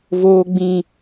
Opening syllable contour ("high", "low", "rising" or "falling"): high